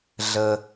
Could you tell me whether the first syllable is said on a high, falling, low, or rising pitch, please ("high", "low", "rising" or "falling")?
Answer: low